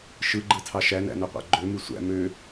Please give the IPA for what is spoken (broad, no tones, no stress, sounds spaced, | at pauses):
ʃ ɯ ɡ͡ǃ ɯ tʰ ɑ ʃ æ n æ̰ n ø qʷ æ̰ ɡ͡ǃ ø m y sʷ æ̰ m ø